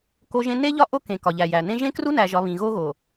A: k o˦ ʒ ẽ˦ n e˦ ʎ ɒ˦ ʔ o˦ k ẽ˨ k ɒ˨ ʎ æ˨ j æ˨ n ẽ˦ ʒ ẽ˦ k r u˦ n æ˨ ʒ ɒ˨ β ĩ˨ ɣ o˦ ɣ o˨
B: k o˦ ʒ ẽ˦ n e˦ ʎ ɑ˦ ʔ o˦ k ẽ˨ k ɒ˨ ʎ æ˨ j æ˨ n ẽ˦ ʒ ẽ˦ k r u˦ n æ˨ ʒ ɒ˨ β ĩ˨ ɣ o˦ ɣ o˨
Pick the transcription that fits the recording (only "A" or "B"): A